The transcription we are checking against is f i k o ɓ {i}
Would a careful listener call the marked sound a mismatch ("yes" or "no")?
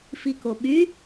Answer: yes